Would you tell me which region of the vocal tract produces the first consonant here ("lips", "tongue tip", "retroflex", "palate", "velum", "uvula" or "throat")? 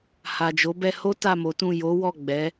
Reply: throat